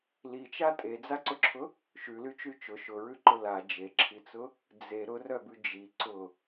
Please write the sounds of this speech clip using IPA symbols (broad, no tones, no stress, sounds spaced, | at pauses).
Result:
l i t͡ʃ a tʼ e d͡z a ǀ ʊ ǁʰ ʊ | ʃ ʉ l y t͡ʃ y t͡ʃ ʊ ʃ ʊ ɹ ʉ ǃ ʊ l a d͡ʒ e ǁʰ i t͡s ʊ | d͡z e ɾ ʊ r œ b ʉ d͡ʒ i ǀ ʊ